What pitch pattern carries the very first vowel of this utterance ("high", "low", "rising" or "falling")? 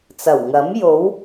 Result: low